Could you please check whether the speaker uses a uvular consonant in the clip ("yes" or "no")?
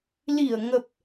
no